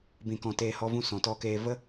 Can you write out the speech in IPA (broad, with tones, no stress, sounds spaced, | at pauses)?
b ĩ˨ k ɔ̃˨ t eː˧ h ɔ˦ v ũ˦ s ɔ̃˨ t ɔ˧ k eː˧ v ə˦